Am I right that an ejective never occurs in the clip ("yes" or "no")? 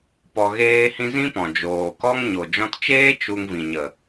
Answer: yes